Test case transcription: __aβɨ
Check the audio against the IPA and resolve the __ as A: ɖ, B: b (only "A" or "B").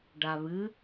A